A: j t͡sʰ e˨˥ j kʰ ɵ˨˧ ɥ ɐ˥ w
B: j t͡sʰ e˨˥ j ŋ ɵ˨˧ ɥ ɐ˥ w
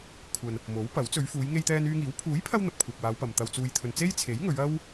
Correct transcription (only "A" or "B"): B